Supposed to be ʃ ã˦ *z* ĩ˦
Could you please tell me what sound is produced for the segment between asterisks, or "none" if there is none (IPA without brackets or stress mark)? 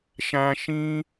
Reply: ʃ